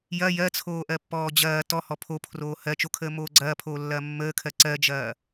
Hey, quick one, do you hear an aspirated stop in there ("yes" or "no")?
yes